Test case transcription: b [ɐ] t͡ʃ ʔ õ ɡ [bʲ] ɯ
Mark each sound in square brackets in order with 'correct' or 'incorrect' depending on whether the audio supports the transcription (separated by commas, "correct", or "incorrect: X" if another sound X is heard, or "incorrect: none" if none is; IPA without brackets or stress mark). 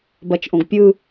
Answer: correct, incorrect: pʲ